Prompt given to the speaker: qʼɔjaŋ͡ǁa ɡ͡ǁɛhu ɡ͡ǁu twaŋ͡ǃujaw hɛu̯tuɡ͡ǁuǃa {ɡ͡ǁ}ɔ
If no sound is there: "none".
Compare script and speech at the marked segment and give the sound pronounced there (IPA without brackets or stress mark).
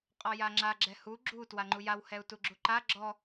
ɡ͡ǁ